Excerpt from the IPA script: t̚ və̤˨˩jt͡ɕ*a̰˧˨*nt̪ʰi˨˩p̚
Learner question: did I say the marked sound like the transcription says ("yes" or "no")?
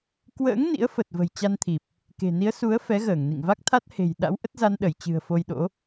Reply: no